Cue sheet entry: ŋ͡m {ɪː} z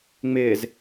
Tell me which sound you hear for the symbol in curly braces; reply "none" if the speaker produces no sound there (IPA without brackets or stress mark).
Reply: ɪː